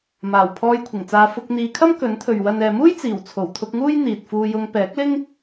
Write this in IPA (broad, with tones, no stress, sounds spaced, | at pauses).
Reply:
m aː˨˩ w pʰ ɔː˧ j kʷʰ ɪ˨˩ ŋ t͡s aː˨˧ f ʊ˧ k̚ n̪ iː˨˧ kʰ ɐ˥ m k ɵ˨˥ n t̪ʰ ɵ˨ ɥ w ɐ˨ n ɛː˨ m uː˥ j t͡s iː˨˩ w t͡sʰ o˨˩ w t̪ʰ ʊ˧ k̚ ŋ uː˥ j n̪ iː˨ t̚ f uː˧ j ʊ˧ ŋ p ɛː˨˥ k̚ l ɪ˥ ŋ